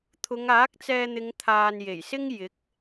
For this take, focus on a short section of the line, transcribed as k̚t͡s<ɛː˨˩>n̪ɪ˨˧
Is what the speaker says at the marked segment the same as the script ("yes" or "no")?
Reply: no